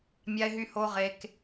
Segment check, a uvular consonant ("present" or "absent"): present